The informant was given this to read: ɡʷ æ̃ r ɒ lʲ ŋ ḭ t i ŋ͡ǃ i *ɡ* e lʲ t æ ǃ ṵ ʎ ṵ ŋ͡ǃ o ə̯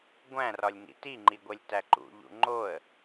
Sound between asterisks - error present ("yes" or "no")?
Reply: yes